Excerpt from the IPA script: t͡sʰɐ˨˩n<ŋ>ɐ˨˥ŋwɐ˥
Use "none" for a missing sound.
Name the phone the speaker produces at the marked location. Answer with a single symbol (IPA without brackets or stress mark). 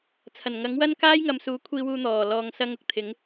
ŋ